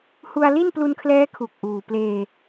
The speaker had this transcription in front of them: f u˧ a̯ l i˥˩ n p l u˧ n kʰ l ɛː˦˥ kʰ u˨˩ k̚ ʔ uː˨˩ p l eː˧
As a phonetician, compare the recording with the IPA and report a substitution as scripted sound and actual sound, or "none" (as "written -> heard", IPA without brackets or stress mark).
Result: f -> h